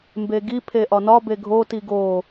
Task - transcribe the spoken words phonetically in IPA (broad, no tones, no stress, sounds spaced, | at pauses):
m b e ɡ i pʰ e ʔ ɒ n ɒ b e ɡʱ o t i ɡ o